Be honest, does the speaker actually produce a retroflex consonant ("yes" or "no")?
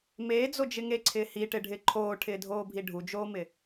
yes